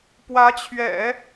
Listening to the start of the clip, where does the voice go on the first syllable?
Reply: rising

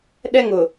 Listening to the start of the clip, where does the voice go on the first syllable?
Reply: high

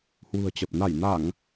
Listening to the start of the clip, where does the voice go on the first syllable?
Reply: low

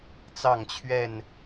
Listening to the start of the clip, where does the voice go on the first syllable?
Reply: falling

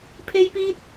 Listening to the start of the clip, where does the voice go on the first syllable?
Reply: high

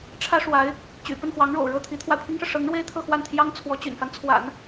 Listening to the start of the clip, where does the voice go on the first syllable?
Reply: high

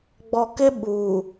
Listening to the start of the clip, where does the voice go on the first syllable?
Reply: low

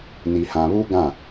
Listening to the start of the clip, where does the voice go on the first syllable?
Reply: low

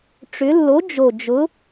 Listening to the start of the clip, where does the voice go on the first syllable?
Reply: rising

